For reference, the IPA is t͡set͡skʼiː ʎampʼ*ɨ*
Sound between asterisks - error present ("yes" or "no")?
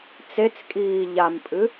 no